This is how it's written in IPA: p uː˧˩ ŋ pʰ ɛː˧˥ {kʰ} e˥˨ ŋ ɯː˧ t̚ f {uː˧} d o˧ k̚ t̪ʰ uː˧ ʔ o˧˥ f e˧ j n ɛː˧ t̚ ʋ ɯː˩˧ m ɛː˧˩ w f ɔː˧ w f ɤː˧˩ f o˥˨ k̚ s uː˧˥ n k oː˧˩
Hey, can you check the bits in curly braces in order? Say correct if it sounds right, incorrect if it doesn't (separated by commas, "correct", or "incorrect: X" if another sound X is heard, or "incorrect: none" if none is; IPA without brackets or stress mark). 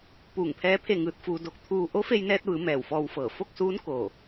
incorrect: pʰ, correct